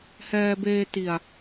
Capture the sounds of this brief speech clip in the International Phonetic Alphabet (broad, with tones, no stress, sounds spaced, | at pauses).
h ɛː˧ b eː˧ t i˨˩ a̯